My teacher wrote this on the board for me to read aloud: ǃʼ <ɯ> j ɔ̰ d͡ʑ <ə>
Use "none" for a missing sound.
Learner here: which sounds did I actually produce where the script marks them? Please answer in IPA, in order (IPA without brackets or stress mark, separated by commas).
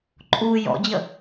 u, ə